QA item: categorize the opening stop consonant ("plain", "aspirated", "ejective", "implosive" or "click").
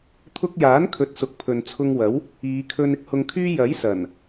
aspirated